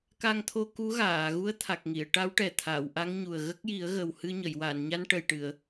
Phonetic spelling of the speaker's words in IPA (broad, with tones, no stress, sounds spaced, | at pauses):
k a˧ ŋ t̪ʰ o˧ k u˧˥ ɣ aː˨˩˨ ɣ u˧˥ ə̯ t̪ʰ a˨˩ k̚ ŋ i˨˩˨ ə̯ ʈ a˧˥ w ʈ ɛ˨˩ t̪ʰ a˨˩˨ w ʔ a˧˥ ŋ ɲ u˨˩ ə̯ ɣ ə˦˥ k̚ j i˨˩˦ ə̯ ɣ ə˨˩ w h ɨ˧ ɲ ə˨˩˨ j w a˨˩˨ n ɲ a˧ n ʈ ə˨˩ j ʈ ɨ˨˩˨ ə̯